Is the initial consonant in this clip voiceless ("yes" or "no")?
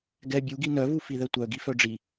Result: no